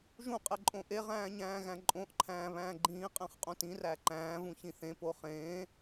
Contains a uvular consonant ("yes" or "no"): yes